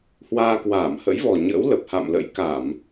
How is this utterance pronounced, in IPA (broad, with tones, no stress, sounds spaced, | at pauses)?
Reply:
h w aː˧ k w aː˧˩ m h ə̰˧˥ j v ɔ˨˩ ɲ ə̰ː˧˥ w l ə˨˩ p̚ h a̰˧˨ m l ə̰˧˥ j k a˧˩˨ m